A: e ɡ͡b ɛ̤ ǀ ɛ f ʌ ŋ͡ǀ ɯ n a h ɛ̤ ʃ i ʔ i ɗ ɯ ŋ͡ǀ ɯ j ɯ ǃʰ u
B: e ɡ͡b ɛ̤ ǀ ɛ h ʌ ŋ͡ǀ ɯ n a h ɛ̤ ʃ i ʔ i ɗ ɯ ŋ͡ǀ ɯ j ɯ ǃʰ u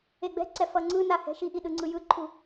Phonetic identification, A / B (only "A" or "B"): A